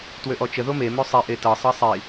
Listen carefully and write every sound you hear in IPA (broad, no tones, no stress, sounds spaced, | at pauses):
t w ø ʔ ɔ t͡ʃ ə ð o m e m ø sˤ e ʔ e t ɤ sˤ ɤ sˤ i